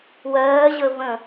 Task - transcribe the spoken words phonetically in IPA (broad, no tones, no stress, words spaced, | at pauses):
wɜːʑə və̃